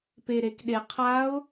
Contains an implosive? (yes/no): yes